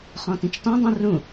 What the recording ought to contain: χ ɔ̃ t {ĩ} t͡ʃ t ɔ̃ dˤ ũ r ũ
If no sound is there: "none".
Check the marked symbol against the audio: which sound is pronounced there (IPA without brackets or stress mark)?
ĩ